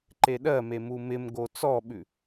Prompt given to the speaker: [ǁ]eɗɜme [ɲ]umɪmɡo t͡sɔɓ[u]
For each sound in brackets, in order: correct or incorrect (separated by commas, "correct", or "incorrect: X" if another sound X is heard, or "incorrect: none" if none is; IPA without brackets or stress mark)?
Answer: incorrect: ǃ, incorrect: m, incorrect: ʉ